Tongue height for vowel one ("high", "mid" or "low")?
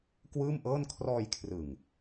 high